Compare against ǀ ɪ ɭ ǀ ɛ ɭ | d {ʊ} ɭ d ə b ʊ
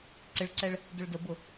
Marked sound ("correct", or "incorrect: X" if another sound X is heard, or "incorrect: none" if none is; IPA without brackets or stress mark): correct